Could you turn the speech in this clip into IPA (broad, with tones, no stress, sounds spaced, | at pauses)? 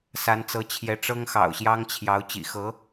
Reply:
s a˧˥ n t͡s ɤ˧˥ t͡ɕʰ j ɛ˧˥ ʈ͡ʂ ɤ˥ ŋ x ɑ̰˨˩ ʊ̯ ɕ j ɑ˥ ŋ t͡ɕʰ j ɑ˧˥ ʊ̯ t͡ɕ ḭ˨˩ x ɤ˧˥